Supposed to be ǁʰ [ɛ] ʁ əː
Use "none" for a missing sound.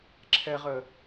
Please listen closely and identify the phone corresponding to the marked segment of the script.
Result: ɛ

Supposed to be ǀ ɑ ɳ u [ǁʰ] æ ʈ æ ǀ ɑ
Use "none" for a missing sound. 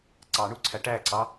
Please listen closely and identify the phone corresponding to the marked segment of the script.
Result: ǀʰ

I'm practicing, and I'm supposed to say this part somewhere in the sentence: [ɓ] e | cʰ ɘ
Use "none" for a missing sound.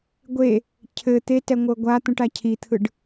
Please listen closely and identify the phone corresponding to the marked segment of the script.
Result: ɡʷ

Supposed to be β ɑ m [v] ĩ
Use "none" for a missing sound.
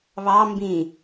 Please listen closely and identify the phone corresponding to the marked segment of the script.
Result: b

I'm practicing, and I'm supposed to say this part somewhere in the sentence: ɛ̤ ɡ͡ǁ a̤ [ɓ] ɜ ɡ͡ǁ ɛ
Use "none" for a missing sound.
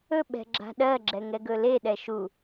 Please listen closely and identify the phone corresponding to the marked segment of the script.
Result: ɗ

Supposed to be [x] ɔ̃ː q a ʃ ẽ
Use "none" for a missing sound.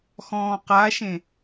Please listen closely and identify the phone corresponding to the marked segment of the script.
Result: x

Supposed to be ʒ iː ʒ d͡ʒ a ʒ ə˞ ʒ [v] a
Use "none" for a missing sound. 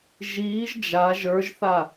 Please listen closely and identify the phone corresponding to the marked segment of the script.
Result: θ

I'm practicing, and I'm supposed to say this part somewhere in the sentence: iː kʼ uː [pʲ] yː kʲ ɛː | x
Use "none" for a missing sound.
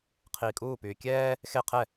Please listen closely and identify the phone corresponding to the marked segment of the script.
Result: p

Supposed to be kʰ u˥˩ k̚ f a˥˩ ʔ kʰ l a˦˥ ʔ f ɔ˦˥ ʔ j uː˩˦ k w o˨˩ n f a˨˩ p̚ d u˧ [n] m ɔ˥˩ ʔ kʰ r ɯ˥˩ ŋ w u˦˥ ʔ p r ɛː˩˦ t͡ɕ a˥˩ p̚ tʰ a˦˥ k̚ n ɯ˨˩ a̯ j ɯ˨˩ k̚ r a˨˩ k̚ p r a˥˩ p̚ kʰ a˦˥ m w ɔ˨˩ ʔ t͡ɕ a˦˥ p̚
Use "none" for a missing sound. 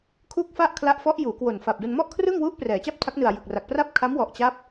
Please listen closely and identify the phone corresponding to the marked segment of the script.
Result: n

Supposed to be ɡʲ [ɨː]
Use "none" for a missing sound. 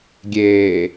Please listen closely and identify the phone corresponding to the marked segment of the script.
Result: eː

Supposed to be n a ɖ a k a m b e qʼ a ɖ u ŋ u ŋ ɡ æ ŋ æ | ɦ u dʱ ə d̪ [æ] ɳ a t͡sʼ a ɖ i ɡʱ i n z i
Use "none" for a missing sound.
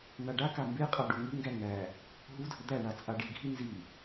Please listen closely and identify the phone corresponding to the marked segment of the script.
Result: æ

